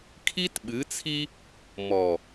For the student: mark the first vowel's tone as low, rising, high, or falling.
high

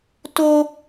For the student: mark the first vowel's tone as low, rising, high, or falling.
high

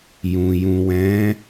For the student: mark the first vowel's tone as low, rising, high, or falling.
low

